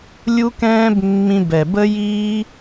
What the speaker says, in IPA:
lʲ u˦ k ɛ̃ː˦ b mː ĩ˧ b ɛ˨ b ə˦ j iː˦

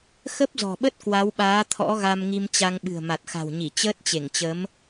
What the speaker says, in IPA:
x ə˦˥ p̚ z ɔ̤˨˩ ɓ ə˦˥ t̚ k w a˨˦ w ɓ aː˨˦ t̪ʰ ɔ̰˧˥ ɣ a˧ m ŋ i˧ m t͡ɕ a˧ ŋ ɓ ɨ̤˨˩ ə̯ m a˨˩ t̚ x a̤˨˩ w ɲ i˧˩ t͡ɕ əː˦˥ t̚ t͡ɕ e˧˩ ŋ t͡ɕ ə˨˦ m

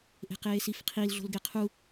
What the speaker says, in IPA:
ʔ e̤ q eː s i f qʰ i l ɮ o̤ l ɡ e qʰ u

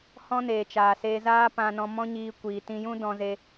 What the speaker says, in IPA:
h ɔ̃˦ n eː˨ t͡ʃ aː˨ s eː˧ z aː˦ p ã˧ n ɔ̃˧ m ɔ̃˦ ɲ iː˧ kʷ iː˨ t ĩ˧ j ũ˦ d ɔ̃˧ z e˧

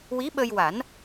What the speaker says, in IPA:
w i˧˥ ɓ ə˧ j w a˨˩˦ n

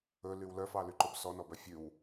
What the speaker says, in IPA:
ɵ l y w l œ f ɑ l y ǃ o b s ɔ n ɔ b œ fʲ ʉ w

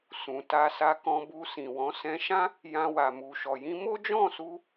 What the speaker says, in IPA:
s ũ˨ t a˧ s a˧ k ɔ̃˧ b u˧ s ĩ˨ w ɔ̃˨˦ s ɛ̃˧ ʃ ã˦ | j ã˧ w a˨ m u˨ ʃ ɔ˨ j ĩ˧ m o˦ d͡ʒ ɔ̃˦˨ s u˧

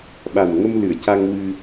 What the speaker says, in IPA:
ɓ a˨˩ n ŋ ə˧ m l ɨ˨˩˨ ə̯ c a˧ ŋ w ɨ˧

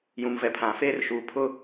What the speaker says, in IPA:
j ũ˨ m v ɛ˨ pʰ ã˨ f eː˦ r ʃ uː˨ pʰ ʊ˦

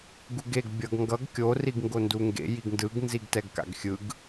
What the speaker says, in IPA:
ɡ u ɡ e ɡ bʲ ʌ ɡ ŋ ɡ ʌ ɡ kʲ o r i ɡ ŋ ɡ o n d u ŋ ɡ ḛ j i ɡ n d ɯ ɡ n z i ɡ t ɛ ɡ k a̰ ɡ xʲ ɯ ɡ

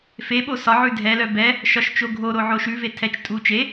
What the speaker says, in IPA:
f e ɓ o s ɒ ʕ ʉ dʱ ɛ l œ b ɛ | ʃ ɒ ʃ t͡ʃ o ɡʱ o ɾ o ʕ o ʃ ʉ v e tʰ ɛ t͡ʃ tʼ u t͡ʃ e

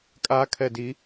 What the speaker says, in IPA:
kʼ a kʰ ɛ d i

